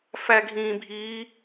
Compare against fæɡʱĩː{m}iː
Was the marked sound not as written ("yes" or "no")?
yes